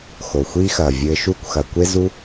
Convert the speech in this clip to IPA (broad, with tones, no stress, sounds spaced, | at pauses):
x o˨ xʷ i˦ x ɐː˨ vʲ ɘː˧ ʃ uː˦ kʷ x ɐ˨ kʷ e˦ z u˦